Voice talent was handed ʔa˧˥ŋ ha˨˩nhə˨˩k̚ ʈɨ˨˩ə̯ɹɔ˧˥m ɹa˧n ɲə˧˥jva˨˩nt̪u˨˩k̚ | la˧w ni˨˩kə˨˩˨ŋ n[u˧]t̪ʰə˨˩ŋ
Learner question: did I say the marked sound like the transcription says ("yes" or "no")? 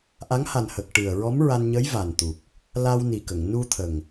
yes